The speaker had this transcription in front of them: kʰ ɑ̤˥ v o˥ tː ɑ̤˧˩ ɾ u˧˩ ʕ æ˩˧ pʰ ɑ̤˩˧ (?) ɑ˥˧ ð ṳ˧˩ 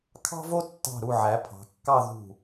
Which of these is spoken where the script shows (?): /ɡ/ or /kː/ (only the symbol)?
kː